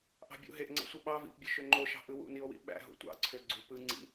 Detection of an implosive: present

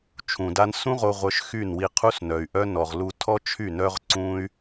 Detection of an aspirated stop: present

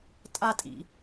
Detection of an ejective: present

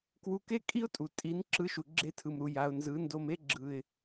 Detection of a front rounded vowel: absent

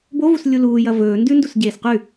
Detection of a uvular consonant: present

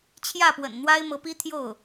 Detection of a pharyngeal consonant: absent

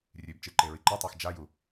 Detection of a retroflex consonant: absent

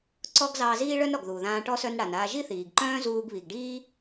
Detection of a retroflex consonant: present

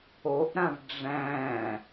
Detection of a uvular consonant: absent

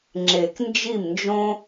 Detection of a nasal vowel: present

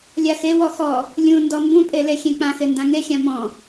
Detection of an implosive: absent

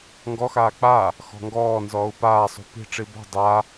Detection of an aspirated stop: absent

